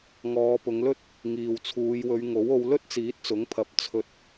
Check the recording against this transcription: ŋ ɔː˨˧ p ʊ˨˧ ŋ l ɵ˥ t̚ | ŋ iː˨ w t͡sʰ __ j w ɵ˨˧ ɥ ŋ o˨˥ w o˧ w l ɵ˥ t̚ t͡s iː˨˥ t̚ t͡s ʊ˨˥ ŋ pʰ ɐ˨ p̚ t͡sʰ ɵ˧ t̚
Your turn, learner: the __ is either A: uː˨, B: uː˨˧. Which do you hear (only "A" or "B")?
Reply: B